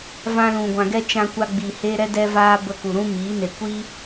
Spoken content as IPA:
v ã˧ l ũ˨ ɡʷ ã˨ ɡ ɛ˦ t͡ʃ ã˧ kʷ a˧ ɡ͡b i˨ h e˦ ɾ ɛ˦ d ɛ˦ v aː˦ b ə˧ k u˨ ɾ ũ˦ m iː˨˦ n e˨ kʷ i˦

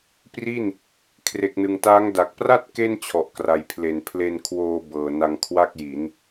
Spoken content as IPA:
p r i˥˩ n | kʰ r e˨˩ k̚ n ɯ˨˩ ŋ t aː˦˥ ŋ d a˨˩ k̚ p r a˥˩ t̚ k e˥˩ n t͡ɕʰ ɔ˨˩ ʔ k r a˨˩ j pʰ l e˨˩ n pʰ l e˧ n kʰ w oː˧ b ɤː˨˩ n a˧ ŋ kʰ w a˥˩ k̚ j i˩˦ n

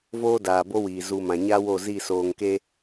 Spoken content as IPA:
v oː˦ d aː˨ b o˦ w iː˨ z u˨ m ã˨ ɲ a˦ w o˦˨ z i˦˨ s oː˨ ŋ k e˦

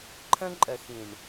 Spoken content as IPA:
ǃʰ ə̃˦ ǃʼ ə˨ x ĩ˨ ɳ

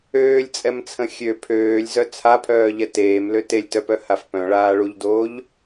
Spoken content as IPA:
øː lʲ t͡sʼ ɛ m t͡sʰ ə̃ xʲ ø pʰ øː lʲ z œ t͡sʰ a pʰ œː ʎ ɛ t eː m l ø t e lʲ t œ p œ h a f p œ̃ ɭ aː ɭ u ʎ d oː ʎ

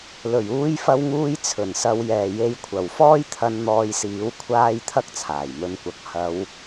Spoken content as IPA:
l ɵ˨˩ ɥ uː˧ j f ɐ˧ w ŋ uː˧ j t͡sʰ ɵ˨˩ n s ɐ˨˧ w j ɛː˨ j e˨˧ j kʷʰ ɐ˨˩ w f ɔː˥ j t̪ʰ ɐ˧ n n̪ ɔː˧ j s iː˨˥ w kʷʰ aː˥ j t̪ʰ ɐ˥ k̚ t͡sʰ aː˨˩ j m ɵ˧ n kʷ ɐ˨˥ k̚ h ɐ˨˧ w

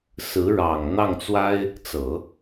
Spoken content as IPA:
s ɹ̩˧˥ ɻ ɑ˨˩ ŋ n̪ ɑ˥˩ ŋ t͡s w a˥ ɪ̯ | t͡s ɤ˨˩˦

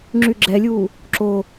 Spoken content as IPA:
ŋ͡ǁ y ɡ͡ǁ ɛ lʲ uː | ǁ o

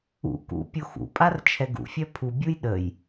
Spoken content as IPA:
ṵ k ṵ pʲ o x ṵ pʼ a r t͡ʃʰ ɛ ɡ ṵ fʲ œ pʰ u bʲ u j ɗ ə j

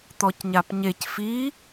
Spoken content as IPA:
t̪ ɔ c ɲ a p ɲ e c f i

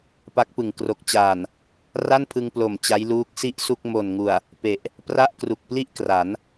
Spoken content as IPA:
p a˦˥ k̚ p ɯ˨˩ ŋ k r o˨˩ k̚ t͡ɕ aː˨˩ n | r a˥˩ n pʰ ɯ˧ ŋ p l o˨˩ m t͡ɕ a˦˥ j l uː˦˥ k̚ s i˥˩ ʔ s u˥˩ k̚ m o˨˩ n ŋ u˨˩ a̯ | p e˨˩ ʔ | p r a˥˩ ʔ k r u˨˩ k̚ p l i˥˩ ʔ k r a˩˦ n

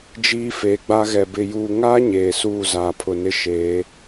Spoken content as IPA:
d͡ʒ iː˦ f eː˨ ɡ͡b a˦ ɣ ɛ˨ b ɪ˨ j uː˨ ŋ aː˦ ɲ eː˨ s uː˦˨ z aː˨ pʰ ʊ˨ n ɪ˦ ʃ eː˨˦

